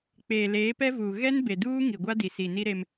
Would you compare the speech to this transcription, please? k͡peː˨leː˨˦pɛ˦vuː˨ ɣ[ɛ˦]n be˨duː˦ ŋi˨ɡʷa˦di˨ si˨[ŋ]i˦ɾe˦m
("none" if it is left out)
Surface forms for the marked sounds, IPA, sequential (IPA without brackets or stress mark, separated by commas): ɛ˦, n